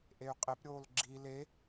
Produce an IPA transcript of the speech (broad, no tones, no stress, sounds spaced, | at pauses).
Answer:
ʔ e y̯ qʼ e p ɾʲ oː l ɡ͡ǁ i l e